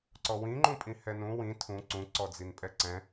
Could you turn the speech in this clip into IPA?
ǀ ɔ w ĩ ŋ͡ǃ ũ pʼ ĩ h ɛ n ũ w ĩ tʰ ũ ǀ ũ ǀ ɔ d͡z i n pʼ ɛ ǀ ɛ̃

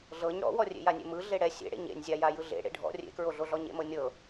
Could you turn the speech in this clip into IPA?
ɮ ɤ ɲ ɽ ɔ̰ w ɔ rʲ ḛ j a nʲ ḛ m ɯ ɮ e ɽ ɛ sʲ ḛ ɽ ḛ ɲ ḛ nʲ zʲ a j a j ɯ ɮ ḛ ɽ ḛ ɖʱ ɔ̰ rʲ ḛ k ɹ o ɮ o ɮ ɔ ɲ ḛ m ɤ nʲ ɤ

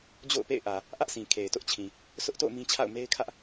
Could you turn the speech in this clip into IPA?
d͡ʑ o̰˦˨ ʊ̯ p ḛ˦˨ ɪ̯ ʔ ä˨ | ʔ ä˦ ʔ s ĩ˨ kʰ e˨ ɪ̯ t ʊ˦ ʔ t͡ɕʰ ĩ˨ | s ʊ˦ ʔ t o̰˦˨ ʊ̯ m ĩ˦ t͡ɕʰ a̰˦˨ ʊ̯ m e˦ ɪ̯ kʰ ä˦ ʔ

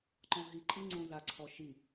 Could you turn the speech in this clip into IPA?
ǃ ɔ̃ ɦ i ǃʼ i ŋ͡ǀ ũ ð a ǀʰ ɔ ʃ i

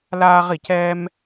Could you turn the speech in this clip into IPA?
l aː˥ ʁ i˩ c ɛː˥ m

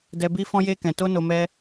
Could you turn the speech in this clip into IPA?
d ɛ˦ b i˦ f ɔ̃˦ j e˦ k ɛ̃˧ t o˦ n o˧ m ɛ˦

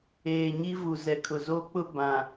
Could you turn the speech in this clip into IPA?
eː˨ ɲ i˦ v u˨ z ɛ˨ kʰ ʊ˨ z o˦ k͡p ʊ˦ b ã˨

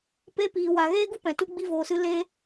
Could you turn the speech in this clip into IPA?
p e˧ p iː˨ w a˨ ɣ eː˦ ɡ u˦ p ɛ̃˨ t u˧ ɡ͡b i˦ v oː˧ s ɨ˦ l e˧

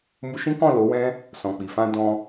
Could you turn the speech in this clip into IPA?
m u˧ ʃ ĩ˦ k ɔ̃˦˨ l o˨˦ w ɛ̃˦ | s ɔ̃˨ k͡p i˨ f ã˧ d ɔ̃˧

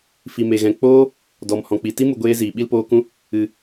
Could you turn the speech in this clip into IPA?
f i˨ m e˨ ɣ ɛ̃˨ k͡p oː˦ | d ɔ˨ m h ɔ̃˨ k͡p i˨ t i˦ m u˨ ɡʷ eː˦ z iː˨ ɓ i˧ l p oː˧ k ũ˧ | ɨ˨

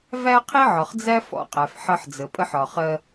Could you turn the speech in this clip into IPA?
v æ˦ qʰ i˦ ʕ ɒ˨ χ d͡z æ˦ f ɔ̰˨ qʼ æ˨ f ħ ʌ˦ ħ d͡z ə˨ pʼ ə˦ ħ ɒ˨ χ ɜ˦

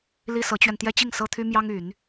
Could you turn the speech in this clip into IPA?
l i˥ s ɤ˧˥ t͡ɕ ɥ ɛ˧ n t̪ j ɛ˥ t͡ɕ i˥˩ ŋ s ɤ˥ t̪ʰ y˥ m j ɑ˥ ŋ y˨˩˦ n

